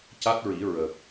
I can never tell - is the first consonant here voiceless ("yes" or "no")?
yes